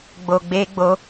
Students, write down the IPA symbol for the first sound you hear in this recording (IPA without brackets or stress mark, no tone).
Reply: ɡ͡b